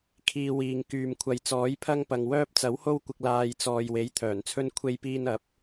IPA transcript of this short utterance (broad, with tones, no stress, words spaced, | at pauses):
kʰiː˧ wiː˨ŋkyː˨m kʷʰɐ˨jt͡sɔː˨˥jpʰɐ˧ŋpɐ˨ŋ wœː˧p̚t͡sɐ˨˥who˧wkʷɪ˨k̚ laː˨j t͡sɔː˨jwe˨˥j t̪ʰœː˨˩nt͡sʰɵ˧n kʷʰe˧jpiː˧nɐ˨˥p̚